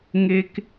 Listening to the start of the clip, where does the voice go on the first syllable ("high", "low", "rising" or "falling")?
high